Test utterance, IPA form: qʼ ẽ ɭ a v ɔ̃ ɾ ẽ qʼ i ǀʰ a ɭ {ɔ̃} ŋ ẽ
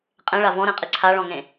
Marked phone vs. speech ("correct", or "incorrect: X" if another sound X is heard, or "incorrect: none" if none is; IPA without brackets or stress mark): correct